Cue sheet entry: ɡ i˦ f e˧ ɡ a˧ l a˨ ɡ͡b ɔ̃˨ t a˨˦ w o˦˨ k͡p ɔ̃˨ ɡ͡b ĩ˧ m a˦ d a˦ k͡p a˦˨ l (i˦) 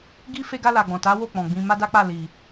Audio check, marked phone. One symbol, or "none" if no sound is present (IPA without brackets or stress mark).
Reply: i˨